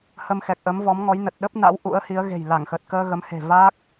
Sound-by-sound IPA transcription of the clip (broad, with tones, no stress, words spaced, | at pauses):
hə˧mxɛ˨˩k̚ʔə˨˦mvɔ˨˦m ŋɔ˨˦jnə˨˩t̚ ɗə˦˥p̚na̰˧˥w ʔṵ˧˥ə̯hi˨˦ə̯ ɣe̤˨˩jla˧˩ŋxə˨˩t̚kəː˧ ɣə˨˦mhe̤˨˩ vaː˦˥k̚